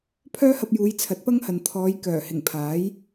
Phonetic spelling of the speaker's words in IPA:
pʰ œː˥ h ɐ˧ p̚ j uː˨˧ j t͡sʰ ɐ˨˥ t̚ p ɐ˥ ŋ h ɐ˨ n t̪ʰ ɔː˨˧ j k œː˨˩ h ɪ˨˩ ŋ pʰ aː˨˥ j

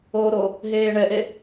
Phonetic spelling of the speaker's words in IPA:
oː ɾ o | ɦ eː ɳ ɛ ʔ e

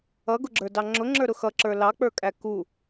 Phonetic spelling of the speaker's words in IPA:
ʌ ɡ ʊ ɡ͡ǁ ə˞ d ɑ ŋ͡ǁ ʊ ŋ͡ǁ ə˞ ɾ ʊ x ʌ ǁ ə˞ l ɑ k͡p ə˞ kʼ æ k u

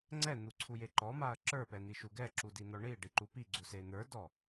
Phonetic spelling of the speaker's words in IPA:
ŋ͡ǀ ɛ n̪ u ǀʰ u j e ǃ ɔ m a ɐ̯ ǁ ə˞ p ɛ n̪ i ʃ u ɡ ɛ ǁ u d i n̪ ɔ ɳ i ɖ i ǃ u p i ɡ͡ǀ u s e n̪ ə˞ d ɔ

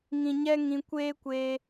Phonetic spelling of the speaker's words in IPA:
ŋ ĩ˨ ɲ ɛ˦ ŋ ĩ˧ kʷ eː˦ kʷ eː˧

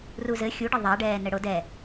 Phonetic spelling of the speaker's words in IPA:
r u z ɘ xʲ u ɖ ɘ ðˤ a ɖ ɛː n ɘ ɽ o d ɛ

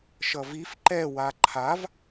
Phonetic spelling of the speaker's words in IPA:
ʃ ʌ v i f ǃ ɛ w a ǃʰ a v

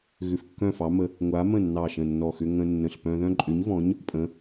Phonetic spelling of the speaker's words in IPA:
ɣ ʏ˧˩ f kː œ̃˥˩ f ɑ˨˥ m ə˨˥ | ŋʷ a˨˥ m ə̃˥˩ nː ɑ˧˩ ʃ ə̃˧˩ nː ɔ˧˩ x ʏ˦ ŋ ə̃˦ nː ə̃˧˩ ɬ p œ̃˦ ð œ̃˦ ǃʼ ʏ˨˥ ɲ v ɔ̃˨˥ ɲ | pʼ ə̃˨˥

